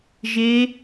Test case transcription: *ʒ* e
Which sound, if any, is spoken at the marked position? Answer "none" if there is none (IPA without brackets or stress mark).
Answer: ʒ